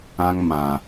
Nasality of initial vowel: nasal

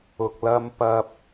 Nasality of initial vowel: oral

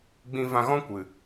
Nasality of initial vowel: nasal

